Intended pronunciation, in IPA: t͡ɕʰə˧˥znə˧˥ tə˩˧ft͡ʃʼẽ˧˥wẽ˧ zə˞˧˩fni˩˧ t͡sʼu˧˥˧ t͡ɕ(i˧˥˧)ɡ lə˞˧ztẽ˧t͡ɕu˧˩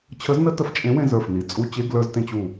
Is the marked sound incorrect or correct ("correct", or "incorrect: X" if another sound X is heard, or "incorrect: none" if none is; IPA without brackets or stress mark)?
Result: incorrect: e˧˥˧